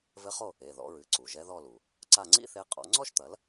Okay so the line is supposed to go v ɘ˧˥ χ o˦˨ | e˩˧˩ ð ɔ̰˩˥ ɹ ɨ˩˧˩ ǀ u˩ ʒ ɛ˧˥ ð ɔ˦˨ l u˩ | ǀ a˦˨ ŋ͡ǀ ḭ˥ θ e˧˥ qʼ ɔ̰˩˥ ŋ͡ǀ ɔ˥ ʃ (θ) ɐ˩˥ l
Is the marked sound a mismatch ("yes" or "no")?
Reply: yes